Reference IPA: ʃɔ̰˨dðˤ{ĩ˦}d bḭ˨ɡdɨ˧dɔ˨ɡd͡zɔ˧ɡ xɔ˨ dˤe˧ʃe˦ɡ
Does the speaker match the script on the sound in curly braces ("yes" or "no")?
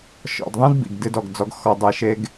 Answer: yes